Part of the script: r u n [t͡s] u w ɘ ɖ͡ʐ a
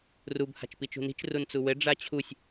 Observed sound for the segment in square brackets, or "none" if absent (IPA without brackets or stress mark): t͡s